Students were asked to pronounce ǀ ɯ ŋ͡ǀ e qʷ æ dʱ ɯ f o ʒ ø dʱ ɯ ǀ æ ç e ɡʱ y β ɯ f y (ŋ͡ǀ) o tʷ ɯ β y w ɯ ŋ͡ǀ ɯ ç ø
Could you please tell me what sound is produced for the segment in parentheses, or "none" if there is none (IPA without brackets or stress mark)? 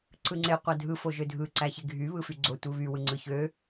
ɡ͡ǀ